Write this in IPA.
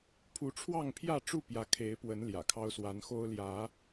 pʰ u˨˦ ʈ͡ʂʰ w ɑ˥˨ ŋ pʰ j ä˥˨ ʈ͡ʂ u˥˨ p j ä˦ kʰ e˨˦ ɪ̯ p w ə˨˦ n l j ä̰˨˩ kʰ ɑ˦ ʊ̯ s w a˨˦ n x o˦ ʊ̯ l j ä˨˦

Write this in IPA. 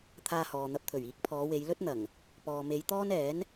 t̪ʰ aː˧ h ɔː˨ n̪ ɐ˧ p̚ t̪ʰ ɵ˨˩ ɥ iː˨˥ k̚ pʰ ɔː˨˧ w e˨˧ j l ɵ˥ t̚ n̪ ɐ˨˩ ŋ | p ɔː˨ m e˨˧ j t̪ ɔː˥ n ɛː˨˥ n

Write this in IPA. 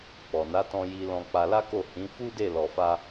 k͡p ɔ˨ n a˨˦ t ɔ̃˧ j i˧ l ɔ̃˧ k͡p a˧ l a˦ k o˦˨ h ĩ˨˦ f u˦ d e˦˨ l ɔ˧ f a˦

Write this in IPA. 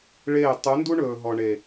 ɭ eː˦˨ tˤ u˨˦ n d u˦ ɳ ɵː˨ ɦ ɔ˨ ɳ e˨

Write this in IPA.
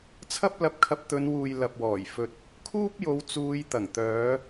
t͡sʰ ɐ˥ p̚ l ɐ˧ p̚ kʰ ɐ˧ p̚ t̪ ɵ˨˧ n w uː˨ j l ɐ˨ p̚ w ɔː˨˩ j f ɵ˧ t̚ | kʰ uː˥ p̚ j o˨˧ w t͡s uː˨˧ j t̪ ɐ˨˩ ŋ t̪ œː˨˧

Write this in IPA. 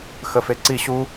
x ə f e ǀ i ɕ u

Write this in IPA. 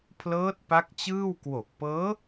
pʰ l ɤː˦˥ t̚ p a˦˥ k̚ t͡ɕ ɯː˥˩ w k w o˨˩ k̚ p ɤː˦˥

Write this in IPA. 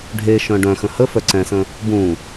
ɖʱ e ʃ œ̃ ɖ œ̃ x ə̃ h ə f œ ǀ ɛ̃ s ə̃ | b ũ

